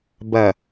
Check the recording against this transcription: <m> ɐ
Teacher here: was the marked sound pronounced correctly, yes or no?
no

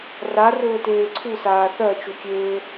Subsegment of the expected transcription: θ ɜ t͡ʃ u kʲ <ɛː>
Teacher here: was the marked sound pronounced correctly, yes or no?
no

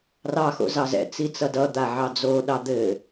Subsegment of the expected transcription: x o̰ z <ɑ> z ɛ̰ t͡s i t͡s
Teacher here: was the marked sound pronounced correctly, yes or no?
yes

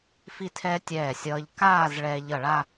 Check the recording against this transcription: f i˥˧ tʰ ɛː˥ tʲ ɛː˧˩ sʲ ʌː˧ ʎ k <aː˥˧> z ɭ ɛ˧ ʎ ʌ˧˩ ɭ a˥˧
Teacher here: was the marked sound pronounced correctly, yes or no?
yes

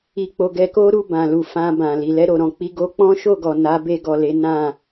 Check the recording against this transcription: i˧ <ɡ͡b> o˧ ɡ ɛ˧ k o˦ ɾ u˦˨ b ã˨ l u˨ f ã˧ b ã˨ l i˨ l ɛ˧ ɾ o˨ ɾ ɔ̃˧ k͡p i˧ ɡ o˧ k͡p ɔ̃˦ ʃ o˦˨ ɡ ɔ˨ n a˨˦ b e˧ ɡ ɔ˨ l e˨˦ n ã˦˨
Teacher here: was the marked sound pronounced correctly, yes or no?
no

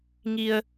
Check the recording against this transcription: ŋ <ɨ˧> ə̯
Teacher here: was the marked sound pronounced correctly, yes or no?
no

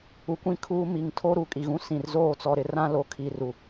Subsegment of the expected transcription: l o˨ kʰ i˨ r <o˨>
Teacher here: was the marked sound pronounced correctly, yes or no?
no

